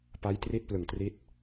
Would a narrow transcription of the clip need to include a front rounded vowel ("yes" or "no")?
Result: no